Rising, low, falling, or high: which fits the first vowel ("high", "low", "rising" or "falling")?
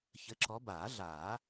rising